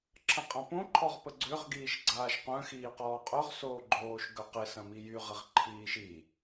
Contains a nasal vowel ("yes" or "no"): yes